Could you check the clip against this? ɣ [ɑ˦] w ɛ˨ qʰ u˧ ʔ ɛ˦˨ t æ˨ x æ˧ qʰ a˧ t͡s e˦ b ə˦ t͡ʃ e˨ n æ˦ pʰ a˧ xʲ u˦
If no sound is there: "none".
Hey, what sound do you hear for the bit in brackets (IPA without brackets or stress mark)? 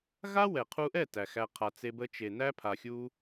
a˦